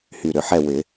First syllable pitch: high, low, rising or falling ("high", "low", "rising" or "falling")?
low